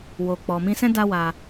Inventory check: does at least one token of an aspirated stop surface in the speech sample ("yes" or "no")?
no